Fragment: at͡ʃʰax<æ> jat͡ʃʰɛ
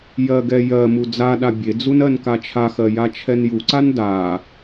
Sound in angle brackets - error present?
yes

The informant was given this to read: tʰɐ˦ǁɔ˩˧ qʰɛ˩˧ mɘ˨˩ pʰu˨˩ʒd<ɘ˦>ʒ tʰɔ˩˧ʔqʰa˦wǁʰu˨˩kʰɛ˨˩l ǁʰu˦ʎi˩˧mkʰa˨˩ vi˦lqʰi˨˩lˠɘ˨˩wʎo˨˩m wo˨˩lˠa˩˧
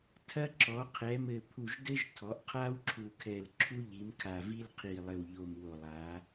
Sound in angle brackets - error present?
no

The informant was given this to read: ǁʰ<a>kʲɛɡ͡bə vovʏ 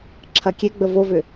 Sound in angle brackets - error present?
yes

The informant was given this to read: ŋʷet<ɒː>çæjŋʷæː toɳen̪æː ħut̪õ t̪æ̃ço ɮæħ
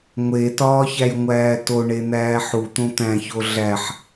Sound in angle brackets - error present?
no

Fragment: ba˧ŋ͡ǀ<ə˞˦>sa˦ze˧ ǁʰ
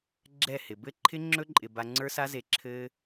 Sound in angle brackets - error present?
no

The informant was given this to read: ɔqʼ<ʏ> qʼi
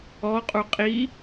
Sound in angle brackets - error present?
yes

